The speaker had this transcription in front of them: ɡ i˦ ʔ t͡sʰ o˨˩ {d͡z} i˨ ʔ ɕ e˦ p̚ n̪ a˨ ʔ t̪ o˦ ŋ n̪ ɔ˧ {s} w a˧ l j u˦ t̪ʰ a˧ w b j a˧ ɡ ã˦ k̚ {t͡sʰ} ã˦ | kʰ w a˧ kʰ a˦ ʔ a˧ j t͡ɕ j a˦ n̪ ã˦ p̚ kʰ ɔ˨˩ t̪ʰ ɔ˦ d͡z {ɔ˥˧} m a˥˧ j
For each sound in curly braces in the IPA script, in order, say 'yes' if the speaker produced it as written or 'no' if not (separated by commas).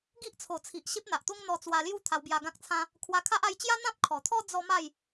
no, no, yes, no